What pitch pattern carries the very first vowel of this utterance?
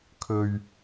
low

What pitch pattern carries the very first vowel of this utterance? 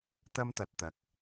high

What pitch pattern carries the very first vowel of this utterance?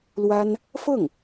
high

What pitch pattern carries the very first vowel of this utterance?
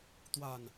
low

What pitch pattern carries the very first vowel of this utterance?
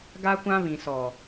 high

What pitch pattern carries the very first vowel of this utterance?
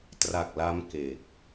low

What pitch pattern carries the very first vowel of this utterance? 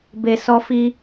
low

